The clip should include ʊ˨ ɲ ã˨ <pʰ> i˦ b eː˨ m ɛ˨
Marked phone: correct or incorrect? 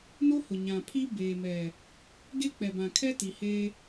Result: correct